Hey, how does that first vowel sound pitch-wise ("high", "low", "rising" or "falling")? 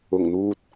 low